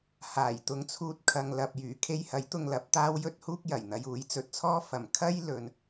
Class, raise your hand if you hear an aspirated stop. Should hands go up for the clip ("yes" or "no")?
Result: yes